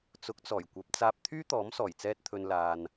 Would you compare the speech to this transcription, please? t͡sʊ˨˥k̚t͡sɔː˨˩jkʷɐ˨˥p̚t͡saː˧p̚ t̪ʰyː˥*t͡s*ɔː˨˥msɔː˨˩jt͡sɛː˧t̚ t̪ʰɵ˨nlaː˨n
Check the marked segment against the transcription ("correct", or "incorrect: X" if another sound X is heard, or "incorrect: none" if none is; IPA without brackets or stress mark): incorrect: t̪